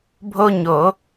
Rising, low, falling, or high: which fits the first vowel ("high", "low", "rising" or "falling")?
high